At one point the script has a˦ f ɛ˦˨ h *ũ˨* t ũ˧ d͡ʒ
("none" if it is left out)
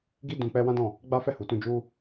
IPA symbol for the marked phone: u˨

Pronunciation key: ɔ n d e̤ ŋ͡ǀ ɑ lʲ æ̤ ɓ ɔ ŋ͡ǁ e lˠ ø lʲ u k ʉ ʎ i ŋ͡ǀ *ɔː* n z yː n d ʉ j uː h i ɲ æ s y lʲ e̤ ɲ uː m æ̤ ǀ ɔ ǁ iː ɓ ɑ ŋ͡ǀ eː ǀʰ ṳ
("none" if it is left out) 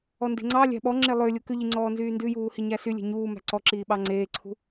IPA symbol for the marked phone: ɔː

